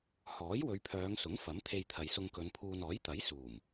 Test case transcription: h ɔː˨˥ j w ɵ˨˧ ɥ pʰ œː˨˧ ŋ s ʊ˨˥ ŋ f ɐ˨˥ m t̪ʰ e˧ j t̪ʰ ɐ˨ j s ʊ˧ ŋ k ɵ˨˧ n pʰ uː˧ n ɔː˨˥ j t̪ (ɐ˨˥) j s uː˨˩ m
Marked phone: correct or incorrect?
correct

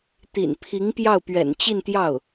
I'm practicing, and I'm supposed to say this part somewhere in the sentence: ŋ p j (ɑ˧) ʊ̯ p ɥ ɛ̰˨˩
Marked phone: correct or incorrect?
incorrect: ɑ˥˩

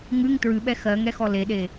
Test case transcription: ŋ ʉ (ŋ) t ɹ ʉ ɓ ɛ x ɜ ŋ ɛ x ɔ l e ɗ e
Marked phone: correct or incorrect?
correct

